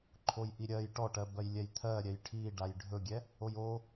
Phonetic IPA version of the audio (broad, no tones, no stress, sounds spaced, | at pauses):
ǃʰ o j ʔ i ɾʲ ɜ j ʈ ɔ ʈ ɜ b ɜ j lʲ ɛ j t̪ʰ ɜ ɾʲ ɛ j ʈʰ i ɖ a j ɖʱ ɵ ɡʲ ɛ | o j o